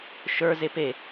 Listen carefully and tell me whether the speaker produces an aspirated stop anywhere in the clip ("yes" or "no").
no